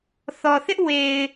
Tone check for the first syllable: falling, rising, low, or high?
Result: low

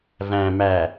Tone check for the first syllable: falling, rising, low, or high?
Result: low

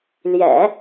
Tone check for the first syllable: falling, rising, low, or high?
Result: low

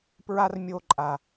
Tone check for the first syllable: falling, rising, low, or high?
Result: high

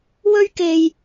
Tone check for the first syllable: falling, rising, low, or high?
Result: high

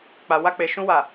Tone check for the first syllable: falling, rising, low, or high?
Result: low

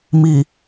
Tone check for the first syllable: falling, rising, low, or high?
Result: low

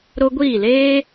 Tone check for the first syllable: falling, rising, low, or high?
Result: high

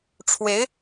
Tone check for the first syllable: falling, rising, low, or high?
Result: rising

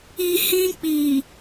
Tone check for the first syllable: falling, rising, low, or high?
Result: low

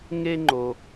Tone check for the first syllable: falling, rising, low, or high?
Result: high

